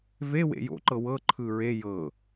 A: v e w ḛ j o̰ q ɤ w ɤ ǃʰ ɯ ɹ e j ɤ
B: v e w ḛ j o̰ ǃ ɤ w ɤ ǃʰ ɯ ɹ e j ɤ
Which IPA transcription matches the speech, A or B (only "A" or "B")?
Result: B